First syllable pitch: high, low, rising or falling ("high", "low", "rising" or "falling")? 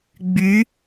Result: rising